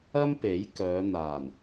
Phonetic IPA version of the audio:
ɐ˥ m p e˨˥ j k œː˨˧ n̪ aː˨˩ n

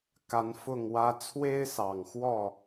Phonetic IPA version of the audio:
k a˨˦ n f ʊ˥˨ ŋ w ä˦ t͡sʰ w e˦ ɪ̯ s ɑ˨˩ ŋ x w ɔ˥˨

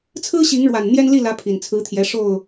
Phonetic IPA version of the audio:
t͡sʰ ɹ̩˦ ɕ i˨˦ ŋ ɻ w a˨˩ n n̪ j ɛ˦ n l i˥˨ l ä˨˦ pʰ i˨˩ n t͡sʰ ɹ̩˨˦ t̪ʰ j ɛ˨˦ ʂ o˥˨ ʊ̯

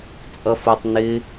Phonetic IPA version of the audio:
t͡sʼ ʌ f ʊ tˤ n ɪ

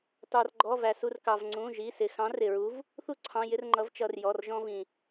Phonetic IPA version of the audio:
t ɑ˩ r ɡ͡ǃ ɔ˩˧˩ v æ˩ s u˩˧˩ r k ɑ˩ v ŋ͡ǀ ũ˩˧˩ ʒ i˩˧˩ s ɪ˩ x ɑ̃˨˥ r ɪ˩ ɹ u˨˥ v | θ u˦ ǀʰ ɑ̃˩˧˩ j ɪ˦ r ŋ͡ǃ ʌ˨˥ v t͡ʃ ʌ˩˧˩ r j ɔ˩˧˩ r ʒ ɔ̃˦ v ĩ˩

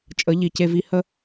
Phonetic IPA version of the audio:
t͡ʃʼ ə˩˧ ʎ i˩ c e˧ v i˧ h ə˥

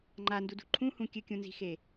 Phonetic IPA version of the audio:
ŋ͡ǃ a n d u d ṳ ǃʰ ũ h ũ kʲ ɨ kʲ ũ n z i̤ x e

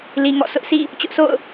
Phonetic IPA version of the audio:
l i˨ ŋ ɔ̰˦˨ sʰ ʊ˦ ʔ s ḭ˦˨ | t͡ɕ ʊ˦ ʔ sʰ o̰˦˨ ʊ̯

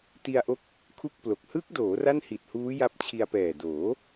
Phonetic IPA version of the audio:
t i˧ a̯ ʔ o˦˥ k̚ | kʰ u˥˩ k̚ p l o˨˩ k̚ h ɯ˦˥ k̚ d oː˩˦ r a˥˩ n h i˨˩ t̚ h uː˦˥ j a˦˥ p̚ t͡ɕʰ i˧ a̯ p ɛː˨˩ d oː˩˦

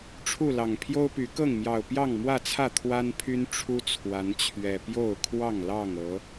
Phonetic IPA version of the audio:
ʈ͡ʂʰ u˥˨ l ɑ˨˩ ŋ pʰ j o˦ ʊ̯ p y˨˦ k ɤ˥˨ ŋ m j ɑ˨˩ ʊ̯ p j ɑ˥˨ ŋ m w ä˥˨ t͡sʰ ä˥˨ t̪ʰ w a˦ n pʰ y˦ n ʈ͡ʂʰ u˦ t͡sʰ w a˨˦ n t͡ɕʰ ɥ ɛ˨˩ p j o˥˨ ʊ̯ kʰ w ɑ˥˨ ŋ l ɑ˥˨ ŋ ɤ˨˦

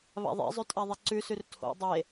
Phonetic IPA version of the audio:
β a̰ ðˤ ḛ zˤ ʉ tʼ a ðˤ i ǀ ʉ s ʉ r tʰ o̰ dˤ e

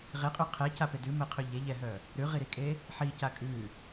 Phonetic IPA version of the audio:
ʁ e qʼ ʉ qʰ ɛ c a p e d ʉ m ɛ qʰ ø ʎ e ʎ ɛ ɦ œ | ɾ ʉ ʁ i ɾ i kʼ e | ħ i c a kʼ ʉ

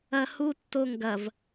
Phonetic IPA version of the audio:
ɐ h u tː o ŋ ɡ ɐ v

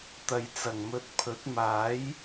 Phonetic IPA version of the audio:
t̪ ɐ˨ j t͡s ɐ˨˩ ŋ m ɵ˧ t̚ pʰ ɵ˨˥ t̚ m aː˨˥ j

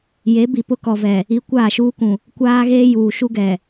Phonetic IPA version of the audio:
j e˨˦ b i˨ p ʊ˦ k ɔ˨ v ɛ˨ | i˦ kʷ aː˦˨ ʃ uː˦ k ũ˨ | kʷ aː˦ ɣ eː˦ j uː˨ ʃ u˦ ɡ ɛ˨

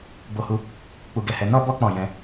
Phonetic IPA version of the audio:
b o˦ h u˦ | k͡p u˧ ɡ ɛ˧ h ɛ˧ n ɔ˦ b ɔ˦ k͡p ɔ̃˦˨ j ɛ̃˧

